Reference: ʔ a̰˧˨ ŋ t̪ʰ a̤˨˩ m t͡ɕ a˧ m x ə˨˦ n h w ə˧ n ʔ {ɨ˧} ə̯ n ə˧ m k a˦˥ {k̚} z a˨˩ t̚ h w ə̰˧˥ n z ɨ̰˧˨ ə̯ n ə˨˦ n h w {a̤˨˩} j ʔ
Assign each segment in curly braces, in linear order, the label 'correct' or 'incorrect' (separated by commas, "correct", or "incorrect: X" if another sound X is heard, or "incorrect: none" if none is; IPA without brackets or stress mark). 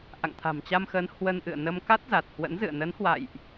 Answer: incorrect: ɨ̰˧˨, incorrect: t̚, incorrect: a̰˧˨